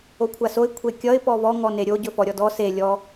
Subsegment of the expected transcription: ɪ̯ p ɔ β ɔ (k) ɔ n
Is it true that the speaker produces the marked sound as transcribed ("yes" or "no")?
no